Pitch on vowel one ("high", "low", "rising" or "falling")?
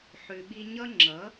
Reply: low